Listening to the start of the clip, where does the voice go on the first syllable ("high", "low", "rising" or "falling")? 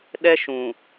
high